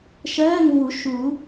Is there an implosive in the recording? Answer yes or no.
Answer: no